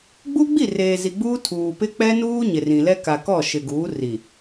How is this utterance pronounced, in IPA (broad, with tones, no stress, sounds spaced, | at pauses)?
ɡ͡b uː˦ ɡ͡b i˦˨ r eː˨ z i˨ ɡ͡b uː˦ tʰ uː˨ p ɪ˦ k͡p ɛ˦ n uː˦ ɲ ɪ˨ r ĩ˨ l ɛ˦ k a˨ k ɔ˦˨ ʃ ɪ˨ ɡ uː˨˦ r i˨